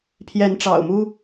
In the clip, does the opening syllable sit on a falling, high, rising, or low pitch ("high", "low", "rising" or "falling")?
rising